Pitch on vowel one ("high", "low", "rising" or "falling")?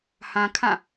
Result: low